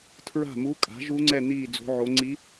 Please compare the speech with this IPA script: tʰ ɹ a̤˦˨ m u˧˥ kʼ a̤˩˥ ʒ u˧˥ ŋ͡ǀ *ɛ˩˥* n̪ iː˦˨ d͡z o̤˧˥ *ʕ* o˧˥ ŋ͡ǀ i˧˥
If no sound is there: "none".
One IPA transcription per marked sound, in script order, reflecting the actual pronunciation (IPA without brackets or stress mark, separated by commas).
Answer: ɛ˦˨, ʕ